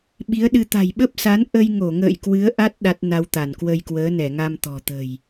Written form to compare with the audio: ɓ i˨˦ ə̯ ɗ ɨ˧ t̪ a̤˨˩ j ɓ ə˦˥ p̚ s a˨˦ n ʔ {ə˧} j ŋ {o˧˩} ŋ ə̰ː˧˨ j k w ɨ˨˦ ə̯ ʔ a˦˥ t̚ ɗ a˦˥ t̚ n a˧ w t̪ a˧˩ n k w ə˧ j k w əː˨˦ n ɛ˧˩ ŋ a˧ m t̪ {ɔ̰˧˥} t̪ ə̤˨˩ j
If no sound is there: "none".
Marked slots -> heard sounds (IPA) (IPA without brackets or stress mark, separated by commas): ə˧, o˧˩, ɔ̤˨˩